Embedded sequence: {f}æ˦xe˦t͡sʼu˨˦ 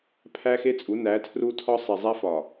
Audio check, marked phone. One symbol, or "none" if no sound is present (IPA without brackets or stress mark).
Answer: pʰ